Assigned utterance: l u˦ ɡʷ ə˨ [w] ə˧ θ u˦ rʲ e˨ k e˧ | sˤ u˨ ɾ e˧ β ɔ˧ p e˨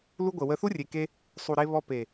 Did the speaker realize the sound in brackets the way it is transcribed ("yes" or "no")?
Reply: yes